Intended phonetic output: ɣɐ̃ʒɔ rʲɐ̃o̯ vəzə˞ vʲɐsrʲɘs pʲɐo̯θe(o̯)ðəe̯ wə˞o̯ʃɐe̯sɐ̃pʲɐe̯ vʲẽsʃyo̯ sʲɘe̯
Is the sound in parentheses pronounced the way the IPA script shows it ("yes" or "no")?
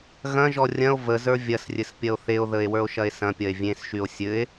yes